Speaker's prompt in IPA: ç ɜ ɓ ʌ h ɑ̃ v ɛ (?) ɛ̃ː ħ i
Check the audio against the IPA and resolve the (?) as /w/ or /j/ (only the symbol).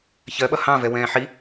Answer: w